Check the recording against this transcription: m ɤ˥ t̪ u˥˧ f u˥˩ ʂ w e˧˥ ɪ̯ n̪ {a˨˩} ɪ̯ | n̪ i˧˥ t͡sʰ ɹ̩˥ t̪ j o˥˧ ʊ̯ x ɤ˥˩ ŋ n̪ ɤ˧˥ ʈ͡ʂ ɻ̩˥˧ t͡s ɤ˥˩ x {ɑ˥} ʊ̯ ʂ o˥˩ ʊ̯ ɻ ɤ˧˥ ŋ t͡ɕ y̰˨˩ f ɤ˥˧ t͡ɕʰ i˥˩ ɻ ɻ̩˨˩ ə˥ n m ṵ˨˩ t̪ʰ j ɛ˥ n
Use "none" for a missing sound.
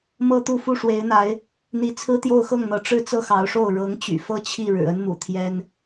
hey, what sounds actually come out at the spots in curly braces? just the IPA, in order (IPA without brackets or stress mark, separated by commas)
a˧˥, ɑ˧˥